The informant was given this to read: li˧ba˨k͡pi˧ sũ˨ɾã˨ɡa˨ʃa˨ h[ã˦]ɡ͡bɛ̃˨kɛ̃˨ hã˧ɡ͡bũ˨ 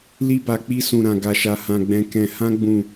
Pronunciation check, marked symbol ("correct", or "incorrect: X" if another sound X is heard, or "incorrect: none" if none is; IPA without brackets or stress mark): incorrect: ã˨